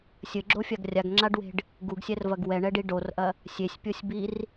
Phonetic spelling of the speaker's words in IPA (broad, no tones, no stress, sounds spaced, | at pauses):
sʲ ɘ ɡ͡ǁ o fʲ a ɡ rʲ a ɡ ŋ͡ǁ a ɖ w e̤ ɖ | ɡ u ɡ sʲ ɛ r v ɐ ɡ w ɛ ɳ ɛ ɖ i ɖ o r ʔ ɐ | sʲ e sʲ pʲ o sʲ b i r